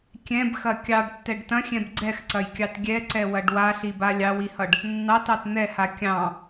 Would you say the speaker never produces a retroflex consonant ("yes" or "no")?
no